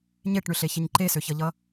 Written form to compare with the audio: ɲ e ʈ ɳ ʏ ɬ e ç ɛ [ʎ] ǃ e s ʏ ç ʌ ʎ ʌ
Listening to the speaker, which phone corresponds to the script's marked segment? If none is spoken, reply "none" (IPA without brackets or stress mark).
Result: ɲ